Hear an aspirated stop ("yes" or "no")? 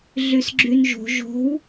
no